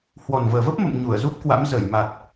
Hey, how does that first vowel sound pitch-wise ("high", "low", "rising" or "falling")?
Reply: low